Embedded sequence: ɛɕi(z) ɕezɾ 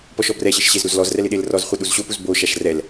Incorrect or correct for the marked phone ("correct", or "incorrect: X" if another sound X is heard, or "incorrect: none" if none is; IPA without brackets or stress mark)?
incorrect: ʃ